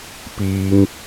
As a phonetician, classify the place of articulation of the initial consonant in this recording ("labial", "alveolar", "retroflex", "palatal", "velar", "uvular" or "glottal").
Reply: labial